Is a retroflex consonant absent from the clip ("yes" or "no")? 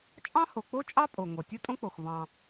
yes